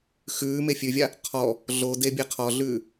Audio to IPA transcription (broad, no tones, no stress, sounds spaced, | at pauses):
x ʉː m e fʲ ʉ vʲ a | qʰ ɔ | ɮ o d e bʲ e qʰ ɔ ɮ ʉː